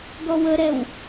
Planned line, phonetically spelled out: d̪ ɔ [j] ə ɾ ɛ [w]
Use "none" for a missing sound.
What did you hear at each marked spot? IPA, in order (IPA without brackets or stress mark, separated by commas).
w, w